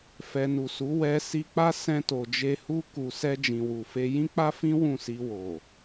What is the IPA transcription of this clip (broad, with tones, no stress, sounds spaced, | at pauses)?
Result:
f ɛ˨ n u˨ s u˨˦ w ɛ˧ s i˧ k͡p a˦ s ɛ̃˧ t o˨ d͡ʒ e˧ h u˦ k u˧ s ɛ˧ d͡ʒ ĩ˨ w u˨ f e˧ j ĩ˦ k͡p a˦ f ĩ˦ w ũ˦˨ s i˧ w o˨